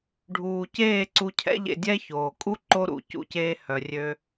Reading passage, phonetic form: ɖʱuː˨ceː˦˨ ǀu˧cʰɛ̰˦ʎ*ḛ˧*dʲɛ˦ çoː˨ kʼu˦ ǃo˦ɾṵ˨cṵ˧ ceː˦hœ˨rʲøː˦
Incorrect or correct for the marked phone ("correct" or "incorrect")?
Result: correct